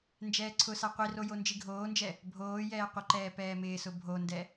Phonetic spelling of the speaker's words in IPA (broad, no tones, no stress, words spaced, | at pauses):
nd͡ʒɛːǀʰʊsa qʷiro jond͡ʒiɡʱoːnd͡ʒɛ | bʱoːjɛː qʷɪǃɛː pɛːmɪːsʊ bʱondɛ